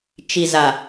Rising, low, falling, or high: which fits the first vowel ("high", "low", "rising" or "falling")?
low